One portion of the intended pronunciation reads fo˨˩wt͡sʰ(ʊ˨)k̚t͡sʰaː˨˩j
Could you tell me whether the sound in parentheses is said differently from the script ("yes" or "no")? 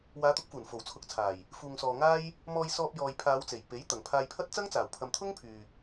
no